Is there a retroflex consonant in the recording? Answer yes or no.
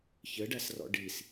yes